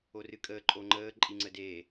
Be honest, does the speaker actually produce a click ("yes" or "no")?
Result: yes